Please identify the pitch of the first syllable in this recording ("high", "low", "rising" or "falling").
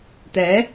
rising